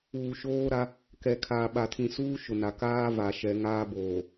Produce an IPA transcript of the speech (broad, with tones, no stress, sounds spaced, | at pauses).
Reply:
uː˨ ʃ oː˦ ɾ a˦ | k ɛ˨ kʰ aː˨ ɓ a˨ tʰ ĩ˨ s uː˦ ʃ ʊ˨ n a˨ k aː˦ v a˨ ʃ ɛ˨˦ ŋ aː˦ b oː˨